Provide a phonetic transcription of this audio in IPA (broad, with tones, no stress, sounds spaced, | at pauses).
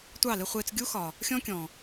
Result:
tʷ ɑ˦˨ l ɪ˦ χʷ ɪː˦ t͡s ɡʲ u˦ x ɒ˨ | xʲ ɔ̃˦ kʲ ɔ̃˨